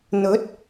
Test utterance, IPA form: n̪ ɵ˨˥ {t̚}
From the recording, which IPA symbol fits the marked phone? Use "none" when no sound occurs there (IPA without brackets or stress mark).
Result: t̚